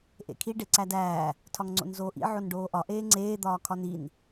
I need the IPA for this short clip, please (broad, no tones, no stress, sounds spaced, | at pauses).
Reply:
ʔ ḛ kʰ i ɖ e ǀ æ d æː | tʰ ɒ ŋ ŋ͡ǀ o̰ n z oː ʔ ḭ ʕ o n ɖ oː ʔ ɒ ʔ eː ŋ͡ǀ eː d̪ ɒː kʰ ɒ n i n